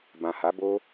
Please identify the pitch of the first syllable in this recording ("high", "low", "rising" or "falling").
low